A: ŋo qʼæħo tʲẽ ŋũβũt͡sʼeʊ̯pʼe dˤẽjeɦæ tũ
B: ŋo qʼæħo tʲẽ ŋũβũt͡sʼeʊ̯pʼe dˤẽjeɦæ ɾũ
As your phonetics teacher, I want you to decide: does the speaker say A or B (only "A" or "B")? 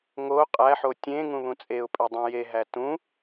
A